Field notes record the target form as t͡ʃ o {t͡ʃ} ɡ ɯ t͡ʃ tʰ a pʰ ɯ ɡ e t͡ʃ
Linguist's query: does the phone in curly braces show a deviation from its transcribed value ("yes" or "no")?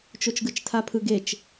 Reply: no